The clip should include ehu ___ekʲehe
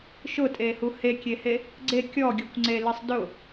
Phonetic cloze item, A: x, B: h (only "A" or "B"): B